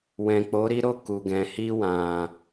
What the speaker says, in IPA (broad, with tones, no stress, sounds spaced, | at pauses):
w ɛ̃˨ k͡p o˨˦ ɾ i˦ ɾ o˦˨ k u˨ ɡ ɛ̃˨ h i˧ w ã˨